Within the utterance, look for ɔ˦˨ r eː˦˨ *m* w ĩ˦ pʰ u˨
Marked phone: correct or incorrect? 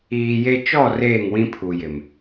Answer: incorrect